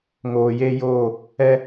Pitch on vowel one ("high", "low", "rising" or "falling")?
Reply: low